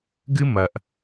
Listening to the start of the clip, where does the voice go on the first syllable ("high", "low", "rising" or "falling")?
high